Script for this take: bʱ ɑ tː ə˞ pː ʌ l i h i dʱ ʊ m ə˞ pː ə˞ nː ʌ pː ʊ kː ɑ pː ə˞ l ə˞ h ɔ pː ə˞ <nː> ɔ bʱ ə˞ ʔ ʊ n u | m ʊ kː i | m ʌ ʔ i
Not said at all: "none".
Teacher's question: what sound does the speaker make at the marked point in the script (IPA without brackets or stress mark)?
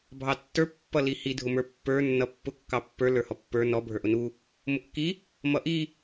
n